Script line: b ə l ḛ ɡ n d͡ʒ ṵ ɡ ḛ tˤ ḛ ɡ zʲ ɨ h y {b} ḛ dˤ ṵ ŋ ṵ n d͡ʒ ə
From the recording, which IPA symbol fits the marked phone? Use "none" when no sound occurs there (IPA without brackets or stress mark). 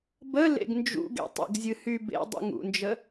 b